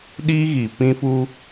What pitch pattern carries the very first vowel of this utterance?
high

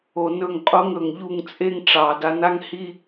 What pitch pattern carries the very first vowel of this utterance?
low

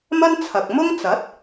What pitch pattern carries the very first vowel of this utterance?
high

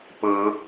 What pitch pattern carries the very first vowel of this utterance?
rising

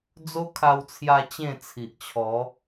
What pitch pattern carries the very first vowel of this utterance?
high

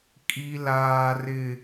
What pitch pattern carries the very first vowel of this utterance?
high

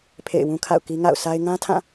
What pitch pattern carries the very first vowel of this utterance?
falling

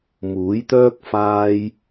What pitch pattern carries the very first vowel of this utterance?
rising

